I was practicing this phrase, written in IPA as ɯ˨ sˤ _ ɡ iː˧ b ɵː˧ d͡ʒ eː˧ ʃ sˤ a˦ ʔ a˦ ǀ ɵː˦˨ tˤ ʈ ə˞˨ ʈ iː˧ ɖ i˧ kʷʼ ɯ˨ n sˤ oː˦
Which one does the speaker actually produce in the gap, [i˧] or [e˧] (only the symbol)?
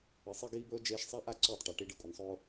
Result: e˧